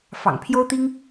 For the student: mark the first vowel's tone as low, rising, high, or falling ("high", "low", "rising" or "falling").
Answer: low